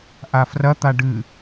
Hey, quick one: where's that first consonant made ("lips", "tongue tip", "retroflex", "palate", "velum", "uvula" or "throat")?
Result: throat